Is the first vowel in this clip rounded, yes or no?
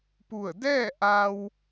yes